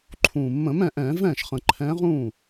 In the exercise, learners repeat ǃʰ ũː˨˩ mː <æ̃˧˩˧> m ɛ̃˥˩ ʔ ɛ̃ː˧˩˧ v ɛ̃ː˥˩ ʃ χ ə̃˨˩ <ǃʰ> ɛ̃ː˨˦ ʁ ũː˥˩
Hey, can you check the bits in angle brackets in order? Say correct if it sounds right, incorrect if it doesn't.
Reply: incorrect: ə̃˧˩˧, correct

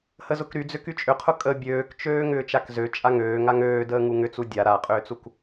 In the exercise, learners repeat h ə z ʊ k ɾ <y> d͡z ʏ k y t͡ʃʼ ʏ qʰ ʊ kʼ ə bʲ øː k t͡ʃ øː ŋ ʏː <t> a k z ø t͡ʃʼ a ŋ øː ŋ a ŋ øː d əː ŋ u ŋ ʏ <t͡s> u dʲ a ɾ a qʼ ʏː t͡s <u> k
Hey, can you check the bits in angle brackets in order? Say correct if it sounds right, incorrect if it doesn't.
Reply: correct, incorrect: t͡ʃ, correct, correct

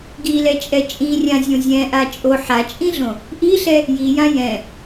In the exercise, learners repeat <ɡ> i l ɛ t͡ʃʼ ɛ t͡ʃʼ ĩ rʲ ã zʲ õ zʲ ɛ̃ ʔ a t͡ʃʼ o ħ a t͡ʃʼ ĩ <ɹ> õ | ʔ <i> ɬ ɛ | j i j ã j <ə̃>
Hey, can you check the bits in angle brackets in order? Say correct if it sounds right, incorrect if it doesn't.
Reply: correct, incorrect: ɮ, correct, incorrect: ɛ̃

